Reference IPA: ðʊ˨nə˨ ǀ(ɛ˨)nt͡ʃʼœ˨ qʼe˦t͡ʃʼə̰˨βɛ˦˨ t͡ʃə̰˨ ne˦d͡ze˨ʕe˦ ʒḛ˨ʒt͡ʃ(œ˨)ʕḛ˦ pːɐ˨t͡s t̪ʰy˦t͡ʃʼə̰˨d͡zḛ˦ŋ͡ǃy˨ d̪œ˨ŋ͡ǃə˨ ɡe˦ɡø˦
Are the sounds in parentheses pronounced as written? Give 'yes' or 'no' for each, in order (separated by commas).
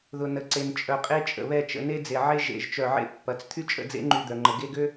no, yes